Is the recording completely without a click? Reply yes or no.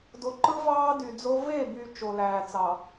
no